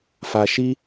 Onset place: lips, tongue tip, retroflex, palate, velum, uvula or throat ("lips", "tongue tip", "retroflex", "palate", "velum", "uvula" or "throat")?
lips